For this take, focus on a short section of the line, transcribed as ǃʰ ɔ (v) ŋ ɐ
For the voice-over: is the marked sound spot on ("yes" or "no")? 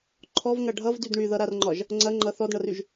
yes